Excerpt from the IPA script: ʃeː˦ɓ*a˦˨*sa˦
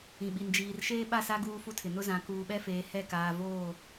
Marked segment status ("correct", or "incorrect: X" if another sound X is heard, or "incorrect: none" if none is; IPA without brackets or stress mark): correct